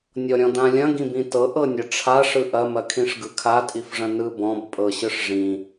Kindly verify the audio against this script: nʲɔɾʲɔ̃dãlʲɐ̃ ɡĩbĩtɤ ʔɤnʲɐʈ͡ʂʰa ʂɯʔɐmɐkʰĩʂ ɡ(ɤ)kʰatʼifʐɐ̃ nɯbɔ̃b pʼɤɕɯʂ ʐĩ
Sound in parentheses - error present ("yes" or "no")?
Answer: yes